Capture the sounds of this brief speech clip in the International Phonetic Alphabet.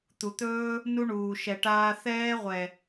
t̪ u˨ t̪ ɵː˦ | n u˦ ɳ uː˨ ʃ ɛ˨ ʈ aː˧ θ ɛː˦ ʁʷ ɛ˨

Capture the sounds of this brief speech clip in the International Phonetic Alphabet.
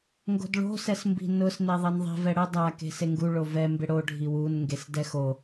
ŋ ɡ o̤ d ɭ o̤ s ɛ s m b i̤ n ʊ s n e ðˤ i n ðˤ i̤ v ɛ ɽ ʊ dˤ a k e̤ s e ŋ ɡ u ɭ o v ɛ m b ɪ ɽ o ɖʱ i w u n ŋ ɡ e s d ɛ x o

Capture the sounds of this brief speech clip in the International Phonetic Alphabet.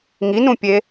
ŋ i n ũ pʲ e

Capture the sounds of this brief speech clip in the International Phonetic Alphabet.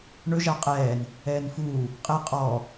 ɳ ɵ ʒ a qʼ ɛː n | ɛː n f uː | qʼ e qʼ ɔ

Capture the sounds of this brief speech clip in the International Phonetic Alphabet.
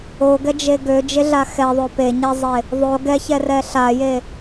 o ɡ ɛ d͡ʒ e ɡ ø d͡ʒ e ɮ a x ɛ ðˤ ø p e ɲ ɛ zˤ e | ðˤ o ɡ ɛ ç ɛ r ɛ ɬ a j e

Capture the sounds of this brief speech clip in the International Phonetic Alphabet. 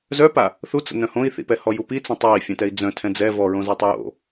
z œ p a | θ u t͡s ə̰ n œ̃ h õ i̯ θ ḭ p ɛ h ɔ j u p i t͡s ə̃ tˤ a i̯ fʲ œ̃ t ɛ i̯ d͡z œ̃ tʰ ɛ̃ d͡z ɛ v ɔ ɹ õ z ɔ tˤ ə j o̰

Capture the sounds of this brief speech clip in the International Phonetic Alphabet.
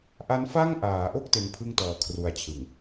ʔ a˦˥ n f a˥˩ ŋ ʔ aː˩˦ ʔ o˥˩ k̚ t e˧ n pʰ ɯ˥˩ ŋ t ɔː˨˩ kʰ r u˧ a̯ t͡ɕʰ ɯ˨˩ ŋ

